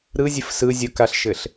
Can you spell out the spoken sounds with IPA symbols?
ɾ ɯ zʲ ɘ f s ɯ zʲ o k a ɬ ʃ ɘ ɬ

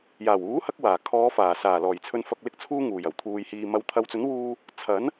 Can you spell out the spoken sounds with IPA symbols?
j aː˨˩ w uː˨˥ h ɐ˧ k̚ w aː˨˩ kʰ ɔː˨˧ f aː˨˩ s aː˨˩ l ɔː˨˩ j t͡sʰ ɵ˧ n f ɐ˧ k̚ l ɪ˧ k̚ t͡sʰ uː˧ ŋ uː˨˩ j ɐ˨˩ w t̪ʰ uː˨ j h iː˨ m ɐ˨ w t̪ʰ ɐ˨ w t͡s ɵ˨˥ n w uː˧ | t͡sʰ ɐ˨˥ n

